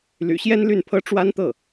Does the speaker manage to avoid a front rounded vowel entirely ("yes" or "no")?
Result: no